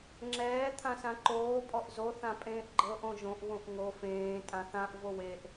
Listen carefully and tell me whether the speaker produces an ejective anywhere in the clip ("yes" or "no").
yes